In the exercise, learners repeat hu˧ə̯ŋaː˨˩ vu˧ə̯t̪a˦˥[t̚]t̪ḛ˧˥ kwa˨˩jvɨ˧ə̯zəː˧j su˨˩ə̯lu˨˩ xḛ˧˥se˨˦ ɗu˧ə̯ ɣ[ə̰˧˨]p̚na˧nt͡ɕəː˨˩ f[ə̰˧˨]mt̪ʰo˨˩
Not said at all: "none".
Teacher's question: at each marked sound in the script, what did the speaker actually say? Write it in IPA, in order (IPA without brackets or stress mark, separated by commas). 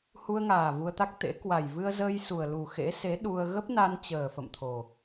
k̚, ə˦˥, ə̰˧˨